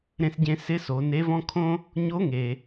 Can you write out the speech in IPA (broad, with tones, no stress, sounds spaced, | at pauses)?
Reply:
ɾ ẽ˧ s ɟ ẽ˧ s ɪ˧˥ s o˩˧ n e˧˥ v ɔ̃˥ kʰ õ˥ | ɲ o˧˥ ŋ e˩